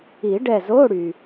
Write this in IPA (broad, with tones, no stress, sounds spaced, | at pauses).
i˨˩˦ ɖ ɛ˧˩ z o˧˥˧ ɽ y˩